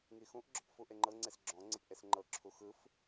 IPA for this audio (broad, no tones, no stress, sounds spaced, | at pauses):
ŋ i x ũ ʔ ɡ͡ǁ ɔ p f u ʔ e ŋ͡ǃ ɤ ŋ͡ǀ e s ɡ͡ǁ ɔ̃ ŋ͡ǀ e p ʔ e s ŋ͡ǃ ɤ ǁʰ u x ɯ f